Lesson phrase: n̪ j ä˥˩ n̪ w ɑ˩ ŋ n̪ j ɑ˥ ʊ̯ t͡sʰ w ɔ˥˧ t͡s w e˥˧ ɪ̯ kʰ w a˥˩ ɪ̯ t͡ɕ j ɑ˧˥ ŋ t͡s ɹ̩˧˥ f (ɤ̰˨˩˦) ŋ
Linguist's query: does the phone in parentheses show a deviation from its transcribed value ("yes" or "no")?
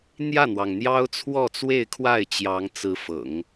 no